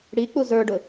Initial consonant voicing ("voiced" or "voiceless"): voiced